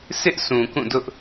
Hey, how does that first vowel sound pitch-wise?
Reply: high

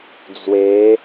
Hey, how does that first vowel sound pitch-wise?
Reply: rising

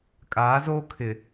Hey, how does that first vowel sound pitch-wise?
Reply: rising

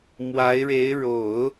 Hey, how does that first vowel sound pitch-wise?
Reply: rising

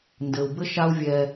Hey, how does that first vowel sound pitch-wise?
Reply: low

